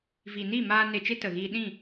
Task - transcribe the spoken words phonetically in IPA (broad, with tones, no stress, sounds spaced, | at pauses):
v i˨ n iː˦˨ m aː˧ n e˧ t͡ʃ e˦ t ə˨ ɣ iː˧ ɗ ĩ˦˨